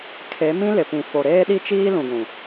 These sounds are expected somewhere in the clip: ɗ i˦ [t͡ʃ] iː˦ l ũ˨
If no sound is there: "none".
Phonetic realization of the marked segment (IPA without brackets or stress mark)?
t͡ʃ